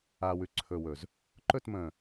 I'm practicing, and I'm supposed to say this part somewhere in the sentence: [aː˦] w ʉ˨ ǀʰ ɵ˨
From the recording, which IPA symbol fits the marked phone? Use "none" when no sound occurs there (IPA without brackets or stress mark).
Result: aː˨